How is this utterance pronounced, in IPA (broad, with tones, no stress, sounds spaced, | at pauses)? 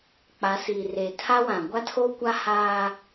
k͡p a˨˦ s iː˨ r eː˨ tʰ a˦ w ã˨ ɡʷ a˦ tʰ oː˦ kʷ a˦ h aː˦